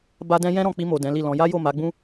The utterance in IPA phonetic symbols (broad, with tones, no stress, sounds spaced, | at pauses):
b a˧ d ɛ̃˧ j ɛ̃˦ ɾ ɔ̃˧ k͡p i˧ m o˨ d ɛ̃˨˦ l i˦˨ l ɔ̃˨˦ j a˦ j o˦˨ m a˨˦ ɡ͡b ũ˦